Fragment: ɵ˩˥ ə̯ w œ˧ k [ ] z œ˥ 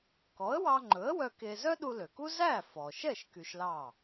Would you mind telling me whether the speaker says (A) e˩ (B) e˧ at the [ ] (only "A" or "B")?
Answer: B